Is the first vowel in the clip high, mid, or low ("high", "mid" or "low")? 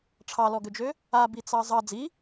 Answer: low